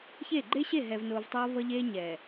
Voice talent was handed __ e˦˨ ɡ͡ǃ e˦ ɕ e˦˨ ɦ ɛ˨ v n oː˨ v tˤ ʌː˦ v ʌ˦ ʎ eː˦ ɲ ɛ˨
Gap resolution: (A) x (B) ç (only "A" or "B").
B